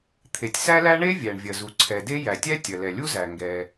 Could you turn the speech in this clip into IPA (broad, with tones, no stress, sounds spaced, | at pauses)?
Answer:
t̪ʰ e˩ tʲ s æ˥ l æ˥ ɳ e˥ vʲ æ˩ ɳ vʲ ɐ˩ z u˩ ǀʰ ɛ˩ d e˥ j æ˩ tʲ æ˥ tʲ ɐ˩ l ɛ˩ lʲ u˥ z æ˩ ŋ ɡ ɛ˩